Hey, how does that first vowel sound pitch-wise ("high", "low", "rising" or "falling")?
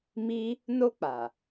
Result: high